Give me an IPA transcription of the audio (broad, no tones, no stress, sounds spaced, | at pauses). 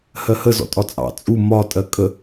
h ɜ h ə z ɔ̰ tʼ ɒ t͡sʼ ɑ̰ t͡sʼ u m ɒ tʼ ɜ kʼ ə